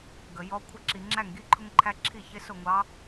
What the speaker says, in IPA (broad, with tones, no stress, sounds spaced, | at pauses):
ɡ ə˨ j ɔ˧˥ kʷʰ ə˧˥ ǁ i˨ ŋ͡ǁ æ˥˩ ŋ ɡ i˧˥ ǃʰ ʊ˥ ŋ ǃʰ æ˥ ǁʰ i˥˩ ç ɪ˧˥ s ʊ˥˩ ŋʷ ɑ˧˥